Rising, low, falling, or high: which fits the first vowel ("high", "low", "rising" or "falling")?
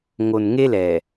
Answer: low